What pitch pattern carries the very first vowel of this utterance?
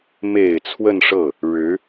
low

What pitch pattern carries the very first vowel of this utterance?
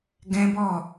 high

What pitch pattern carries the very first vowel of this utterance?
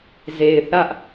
low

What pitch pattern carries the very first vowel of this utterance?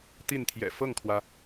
falling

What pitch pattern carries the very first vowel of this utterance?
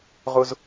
high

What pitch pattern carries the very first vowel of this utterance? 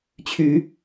rising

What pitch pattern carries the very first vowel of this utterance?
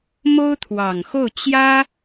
high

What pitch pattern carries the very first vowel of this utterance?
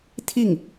falling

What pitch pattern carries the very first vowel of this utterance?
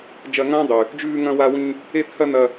high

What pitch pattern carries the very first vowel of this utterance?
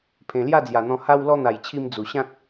low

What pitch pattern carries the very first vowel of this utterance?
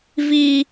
high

